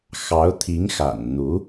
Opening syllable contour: rising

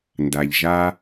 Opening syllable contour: low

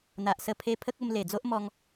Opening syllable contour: low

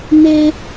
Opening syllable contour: high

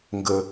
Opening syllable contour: low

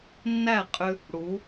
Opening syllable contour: falling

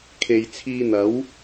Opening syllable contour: low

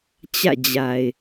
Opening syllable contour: falling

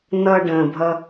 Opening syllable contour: low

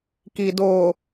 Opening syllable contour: low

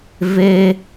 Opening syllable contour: high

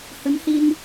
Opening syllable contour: rising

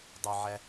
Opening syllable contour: low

